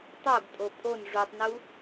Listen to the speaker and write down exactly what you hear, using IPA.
tˤ o ɡ tʼ o pʼ o n ʐ u tˤ n u

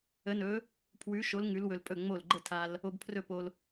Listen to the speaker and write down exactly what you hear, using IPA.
ə˨˥ n ɵ˨˥ | pʰ w ʉ˨˥ ʃ o˨˥ l ŋ ʉ˨˥ l w ɵ˧ l pʼ ɵ˥˩ ŋ͡m o˥˩ l ɡ͡ǃ ə˥˩ tʰ a˧ l | o˧ b pʰ r ɵ˥˩ p o˧ l

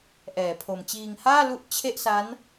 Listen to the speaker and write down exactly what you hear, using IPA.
ʔ ɛː˩˦ pʰ o˨˩ m t͡ɕ iː˧ ŋ h aː˥˩ l u˦˥ ʔ t͡ɕʰ e˥˩ ʔ s a˦˥ n

